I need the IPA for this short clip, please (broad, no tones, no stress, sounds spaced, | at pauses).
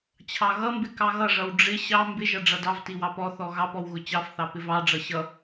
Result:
t͡ɕʰ ɑ ɣ ʌ m b ɪ k ɑ ɣ ʌ ʐ ʌ w ɖ͡ʐ ɪ ɕ ɑ m b ɪ ʒ ʌ ɖ͡ʐ ʌ d ɑ v t i w ɑ p ɔ θ ɔ ɣ ɑ p ɔ w ɣ ʊ t͡ɕ ɑ f θ ɑ p ɪ v ɑ ɖ͡ʐ ʌ ɕ ʌ